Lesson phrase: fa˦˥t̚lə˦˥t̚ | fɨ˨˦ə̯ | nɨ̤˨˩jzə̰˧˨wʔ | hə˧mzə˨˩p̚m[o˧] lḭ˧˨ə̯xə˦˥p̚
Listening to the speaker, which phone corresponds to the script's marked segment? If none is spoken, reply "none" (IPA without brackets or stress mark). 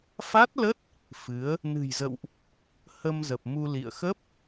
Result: u˧